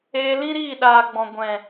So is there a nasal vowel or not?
yes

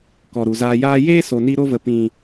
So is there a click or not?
no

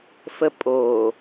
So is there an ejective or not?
yes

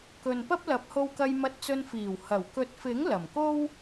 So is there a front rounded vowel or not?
no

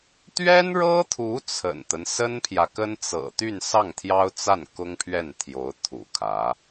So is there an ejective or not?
no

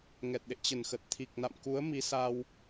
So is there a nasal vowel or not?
no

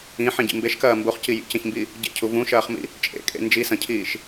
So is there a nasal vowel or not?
yes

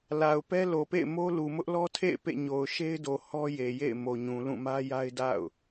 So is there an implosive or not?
no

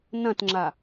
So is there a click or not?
yes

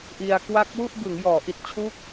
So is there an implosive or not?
no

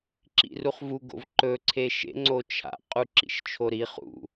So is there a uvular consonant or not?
yes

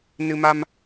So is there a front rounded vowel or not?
no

